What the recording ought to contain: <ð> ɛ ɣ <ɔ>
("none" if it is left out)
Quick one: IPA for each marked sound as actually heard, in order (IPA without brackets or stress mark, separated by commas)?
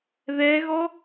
ð, ɔ